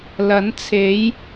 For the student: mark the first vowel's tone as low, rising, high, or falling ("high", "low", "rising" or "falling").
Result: rising